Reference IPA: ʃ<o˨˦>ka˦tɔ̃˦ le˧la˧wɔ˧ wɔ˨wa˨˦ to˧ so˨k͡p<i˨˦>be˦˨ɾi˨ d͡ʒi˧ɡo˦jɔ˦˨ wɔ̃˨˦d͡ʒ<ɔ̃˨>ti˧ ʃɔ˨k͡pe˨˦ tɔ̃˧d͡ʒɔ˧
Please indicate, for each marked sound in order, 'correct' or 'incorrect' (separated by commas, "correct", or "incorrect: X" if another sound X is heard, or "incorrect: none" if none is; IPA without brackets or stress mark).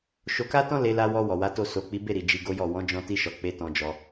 incorrect: o˧, correct, incorrect: ɔ̃˧